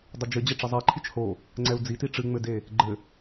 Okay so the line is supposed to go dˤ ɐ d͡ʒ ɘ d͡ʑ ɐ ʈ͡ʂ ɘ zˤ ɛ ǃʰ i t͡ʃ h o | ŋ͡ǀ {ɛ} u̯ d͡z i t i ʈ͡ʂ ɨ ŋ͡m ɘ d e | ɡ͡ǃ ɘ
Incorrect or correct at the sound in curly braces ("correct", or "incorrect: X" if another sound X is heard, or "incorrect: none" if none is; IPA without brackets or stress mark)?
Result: correct